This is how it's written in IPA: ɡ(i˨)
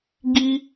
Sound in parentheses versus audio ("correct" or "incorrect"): incorrect